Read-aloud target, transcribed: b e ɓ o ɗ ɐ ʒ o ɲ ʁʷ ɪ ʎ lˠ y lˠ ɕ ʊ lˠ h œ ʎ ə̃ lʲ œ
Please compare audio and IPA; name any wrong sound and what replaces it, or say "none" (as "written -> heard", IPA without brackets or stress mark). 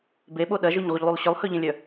none